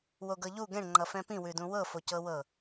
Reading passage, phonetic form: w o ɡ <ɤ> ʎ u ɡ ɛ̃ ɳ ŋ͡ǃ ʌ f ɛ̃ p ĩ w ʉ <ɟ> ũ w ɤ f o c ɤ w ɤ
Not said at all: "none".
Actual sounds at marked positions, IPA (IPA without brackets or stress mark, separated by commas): ɤ, d